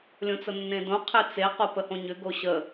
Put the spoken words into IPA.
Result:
lʲõt͡sənːẽdõ qʰet͡se qopəhõɲʏ ɡoɕə

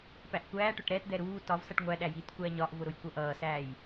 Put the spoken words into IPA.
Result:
pæʔkʷæːʈʊʈ ɾɛtd̪ɛ ɾuː tɒvsʌʈ ŋʷæɗæ jitkʷæɲɒʔvʊ ɾʊjkʷʌʔʌːsæːj

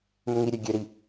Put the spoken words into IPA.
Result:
mʏŋiɾʲø ɡʲøɾi

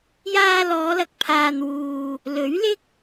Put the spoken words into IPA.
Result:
jaː˧lɔː˨˧lɐ˨k̚ pʰaː˨nwuː˨ | lɵ˨˥ɥlɪ˥k̚

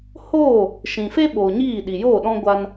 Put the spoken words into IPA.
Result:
hoː˦˨ | ʃĩ˨ fe˦ɓoː˨ ɲiː˦˨ ɗi˨jo˦˨ɗɔ̃˦ ɡʷa˦n

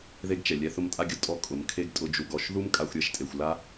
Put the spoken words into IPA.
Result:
ðe˦ɡt͡ʃɛ˨lʲɛ˧ θʊ˧mtʼa˧ɡʲʊ˦ tʼɔ˦kʼʊ˨m kʰe˦ɡtʼʊ˧ d͡ʒu˨ɡɔ˨ʃðu˦m kʼa˧xʷɾʲɛ˧ʃtʼe˨xʷla˦

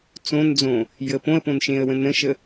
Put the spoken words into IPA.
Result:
t͡sõnd͡zõ | jəpõə̯põn ʃẽə̯wə̃nə̃ʃə

